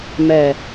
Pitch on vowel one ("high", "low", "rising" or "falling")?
low